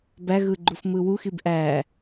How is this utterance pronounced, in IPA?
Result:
b æ ɣ ɯ ɡ͡ǃ u f m ɯ w u x i b ʔ æ

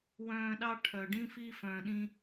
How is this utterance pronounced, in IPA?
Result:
w œ̃ː˧ ɗ ɑ˦ ʈʰ œ˨ ɖ ĩ˦ f iː˧ f œ̃ː˨ ɗ ĩ˧

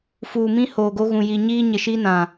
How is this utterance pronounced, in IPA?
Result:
f uː˨ m ĩ˦ h oː˨ ɡ o˦ ɣ ũ˨ j i˨ ɲ iː˦ ɲ ɪ˨ ʃ i˦ n ã˨

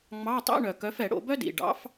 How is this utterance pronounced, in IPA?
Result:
ŋ͡m ɑ˧˥˧ tˤ ɛ̰˧˥˧ ɳ œ˩ k œ˨˥ f ɛ˧˩˧ ɽ o̰˧˩˧ b œ˥ d ḭ˩ ɖ ɑ̰˨˥ f

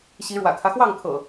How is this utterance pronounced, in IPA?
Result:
ɕ i˨˦ ɻ w ä̰˨˩ kʰ ä˦ x w ɑ˥˨ ŋ kʰ ɤ̰˨˩

